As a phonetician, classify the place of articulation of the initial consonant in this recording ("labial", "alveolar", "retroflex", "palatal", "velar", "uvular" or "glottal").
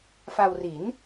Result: labial